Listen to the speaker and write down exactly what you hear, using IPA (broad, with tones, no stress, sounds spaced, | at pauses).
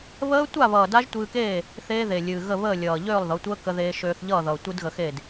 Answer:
β əː˦˥ tʷ a˥˨ β ʌː˨˩ d a˦˥ ʒ tʷ ɨː˧ k eː˥˨ | θ eː˦˥ ð e˨˩ lʲ ɨː˨˩ ɣ ə˥˨ β əː˥˨ lʲ ʌː˨˩ ʎ øː˥˨ lˠ ð ʌ˩˥ tʷ əː˦˥ k ə˧ ð eː˧ ʃ øː˧ θ ʎ ʌː˥˨ ð ʌː˨˩ tʷ ɨ˦˥ d ɣ ə˧ x e˥˨ d